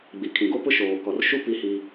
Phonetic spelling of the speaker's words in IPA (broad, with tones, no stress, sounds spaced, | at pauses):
ɡ͡b i˨ kʰ ĩ˨ ɡ o˦ p ʊ˦ ʃ oː˨ k ɔ˨ r ʃ u˦ p i˦ h i˦